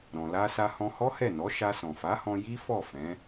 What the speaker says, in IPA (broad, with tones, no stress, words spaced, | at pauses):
ɾɔ̃˨la˧sa˧ hɔ̃˧hɔ˦hɛ˦˨nɔ˨˦ ʃa˧sɔ̃˨fa˨˦hɔ̃˧ ji˦fɔ˦˨ fɛ̃˨˦